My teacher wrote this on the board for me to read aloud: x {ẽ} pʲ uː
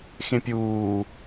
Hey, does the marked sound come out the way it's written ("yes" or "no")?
yes